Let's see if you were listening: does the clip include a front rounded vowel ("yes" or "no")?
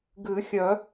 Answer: yes